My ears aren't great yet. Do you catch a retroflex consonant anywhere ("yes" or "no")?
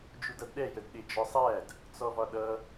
no